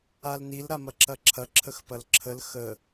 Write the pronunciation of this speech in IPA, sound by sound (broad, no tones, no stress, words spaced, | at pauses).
alnil ɾamɐǁɐǁʰɐ ǁʰəxpɐlǁʰəl xə